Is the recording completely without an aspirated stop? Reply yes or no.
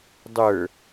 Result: yes